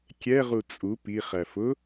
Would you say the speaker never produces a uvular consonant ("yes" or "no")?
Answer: no